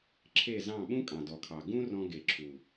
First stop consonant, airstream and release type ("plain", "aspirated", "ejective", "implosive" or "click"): click